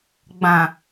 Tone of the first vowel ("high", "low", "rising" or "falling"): low